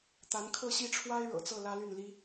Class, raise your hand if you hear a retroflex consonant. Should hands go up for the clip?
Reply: yes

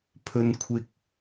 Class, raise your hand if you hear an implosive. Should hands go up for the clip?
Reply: no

